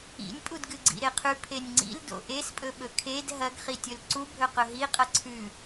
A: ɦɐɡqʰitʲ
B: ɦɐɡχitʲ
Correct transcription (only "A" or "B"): B